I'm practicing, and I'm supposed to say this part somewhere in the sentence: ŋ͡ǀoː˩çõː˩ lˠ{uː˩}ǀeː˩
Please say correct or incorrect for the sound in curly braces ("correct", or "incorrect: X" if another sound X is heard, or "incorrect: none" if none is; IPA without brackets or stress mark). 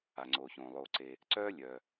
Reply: incorrect: oː˩